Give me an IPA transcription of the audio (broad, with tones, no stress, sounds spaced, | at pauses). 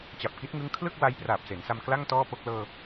t͡ɕ a˨˩ p̚ k i˦˥ t̚ ŋ ɯ˦˥ ŋ kʰ l ɯ˥˩ k̚ w a˦˥ j p r aː˨˩ p̚ s e˩˦ n s a˧ m k l a˥˩ ŋ t ɔː˥˩ p o˥˩ k̚ l ɤː˧